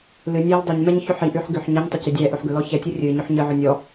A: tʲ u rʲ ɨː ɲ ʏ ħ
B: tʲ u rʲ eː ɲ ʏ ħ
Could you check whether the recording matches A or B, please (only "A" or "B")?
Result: A